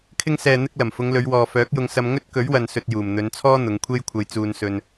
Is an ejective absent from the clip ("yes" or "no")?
yes